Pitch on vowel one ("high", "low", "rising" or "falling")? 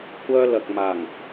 high